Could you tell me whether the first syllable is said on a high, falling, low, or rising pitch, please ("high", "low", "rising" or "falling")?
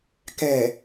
low